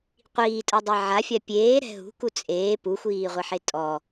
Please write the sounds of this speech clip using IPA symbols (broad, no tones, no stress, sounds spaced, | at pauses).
qʷ iː tʼ ɐ dˤ ɛ ʕ a fʲ a pʲ eː ɾ ɛ̤ ɦ ṳ k u t͡sʼ eː p u xʷ iː ʁʷ e ħ e tʼ ɔ